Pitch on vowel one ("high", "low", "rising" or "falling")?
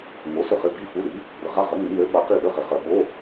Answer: rising